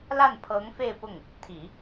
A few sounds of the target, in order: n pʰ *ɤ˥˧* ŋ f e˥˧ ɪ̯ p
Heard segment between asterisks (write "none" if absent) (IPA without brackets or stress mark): ɤ˧˥